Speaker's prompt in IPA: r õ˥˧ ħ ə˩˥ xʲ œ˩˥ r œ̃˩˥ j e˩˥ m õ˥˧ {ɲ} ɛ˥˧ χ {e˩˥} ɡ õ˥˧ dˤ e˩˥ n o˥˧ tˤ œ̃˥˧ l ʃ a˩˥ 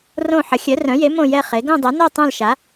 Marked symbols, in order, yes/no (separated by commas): no, yes